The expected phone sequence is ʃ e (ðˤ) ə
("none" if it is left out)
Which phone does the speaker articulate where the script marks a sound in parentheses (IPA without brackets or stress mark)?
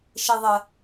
ðˤ